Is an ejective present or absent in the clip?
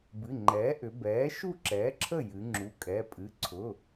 present